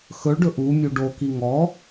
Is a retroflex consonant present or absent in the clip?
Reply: present